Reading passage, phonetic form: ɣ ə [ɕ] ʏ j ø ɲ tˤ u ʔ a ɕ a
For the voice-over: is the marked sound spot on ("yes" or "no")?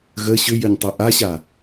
yes